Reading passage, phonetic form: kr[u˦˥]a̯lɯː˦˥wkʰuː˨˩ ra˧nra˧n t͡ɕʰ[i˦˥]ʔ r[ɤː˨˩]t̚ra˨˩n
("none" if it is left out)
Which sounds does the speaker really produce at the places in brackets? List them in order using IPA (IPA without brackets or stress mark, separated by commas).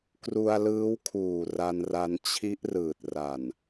u˧, i˦˥, ɯː˨˩